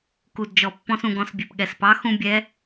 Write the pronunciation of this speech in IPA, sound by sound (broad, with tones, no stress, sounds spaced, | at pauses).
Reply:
k u˩ d d͡ʒ ɔ˩ pː ɔ̃˧ s ũ˩ ɡ ɔ̃˧˩˧ s bʲ e˩ p ɠ ɛ˩ s p ɑ˨˥ x ũ˧ bʲ ɛ˨˥